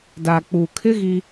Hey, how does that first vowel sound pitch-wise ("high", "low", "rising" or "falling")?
low